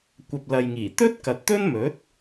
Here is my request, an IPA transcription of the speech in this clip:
kʷ ɐ˨ p̚ l ɐ˨ j ŋ iː˨˩ t̪ ɵ˥ t̚ k ɐ˨ t̚ t̪ ɵ˥ n m ɵ˨˥ t̚

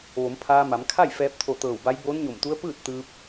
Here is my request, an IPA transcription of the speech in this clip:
ʋ o˩˧ m pʰ aː˧ m a˩˧ m kʰ a˥˨ j f ɛː˧ p̚ t̪ʰ o˧˩ t̪ ɤː˧˩ w b a˧˥ j b oː˧˥ n ɲ o˧˩ m t̪ u˧˥ ə̯ p ɯː˥˨ t̚ t̪ ɯː˧ p̚

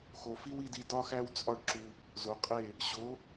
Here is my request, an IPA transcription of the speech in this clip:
x o˨ f i˦ w i˧ d i˧ d ɒ˦ x æ˦ w t͡sʼ ɒ˦ ɖ ǁ u˧ | z o˨ qʼ e˦˨ | ɕ o˨˦

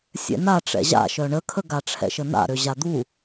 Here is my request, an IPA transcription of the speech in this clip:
sʲ ɛ̰ n a ʈ͡ʂ ɛ̰ ʑ a̰ ʃ œ ɳ ə kʰ ə ɡ a ʈ͡ʂʰ ɛ̰ ʃ ə n a̰ ɾ ø ʑ a d̪ u

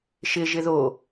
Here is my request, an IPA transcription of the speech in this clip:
ʃ ɪ ʒ ɪ ð o

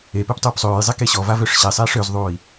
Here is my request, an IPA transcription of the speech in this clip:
e p e p tˤ uː p sˤ øː j zˤ e k e ɕ ɔ v a v ø ʂ ɕ e sˤ eː ʂ ø z ðˤ uː i̯

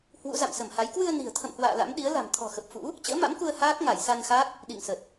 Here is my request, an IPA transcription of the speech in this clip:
h w ṵ˧˥ z a̰˧˨ m s ə˧˩ m h a˨˦ j k w ɨ˧ ə̯ n i̤˨˩ ə̯ t̪ʰ ə̰˧˨ m h w a̰ː˧˨ l a̰˧˥ m ɗ i˨˦ ə̯ l a̤˨˩ m t̪ʰ ɔ̤˨˩ x ə˨˩ p̚ f ṵ˧˥ | t͡ɕ ə̰ː˧˥ m a̰˧˥ m k u˧ ə̯ h aː˦˥ k̚ ŋ a˧˩ j s a˧ n x a˦˥ k̚ | ɗ ḭ˧˨ ŋ s ə˨˩ t̚

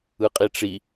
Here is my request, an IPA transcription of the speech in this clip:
ɯ qʼ i ʈ͡ʂ i

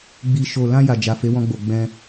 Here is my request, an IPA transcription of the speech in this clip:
ɡ͡b i˨ ʃ o˨ l ã˧ j a˨ d͡ʒ a˨ f e˨˦ w ɔ̃˧ ɡ͡b o˨ ɡ͡b ɛ̃˧

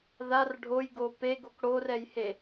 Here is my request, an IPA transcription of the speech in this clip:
ð a r ɖʱ o j ɡ o p e ɡ o k ɽ o r ɛ j h e

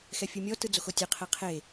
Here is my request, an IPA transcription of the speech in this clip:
x ɛ fʲ ɯ mʲ ɔ t ɯ d͡z o x o tʲ e qʰ ɛ qʰ e

